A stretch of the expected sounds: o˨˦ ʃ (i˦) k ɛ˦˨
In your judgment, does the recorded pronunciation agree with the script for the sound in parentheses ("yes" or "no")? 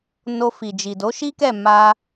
yes